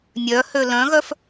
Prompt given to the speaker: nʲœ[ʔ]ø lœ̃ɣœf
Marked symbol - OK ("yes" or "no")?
no